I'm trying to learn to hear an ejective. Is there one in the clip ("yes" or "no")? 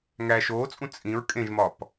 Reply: yes